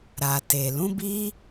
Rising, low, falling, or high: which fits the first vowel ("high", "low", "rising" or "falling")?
low